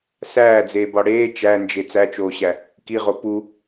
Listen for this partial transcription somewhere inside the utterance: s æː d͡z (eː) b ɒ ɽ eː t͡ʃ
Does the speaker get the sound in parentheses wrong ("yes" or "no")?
no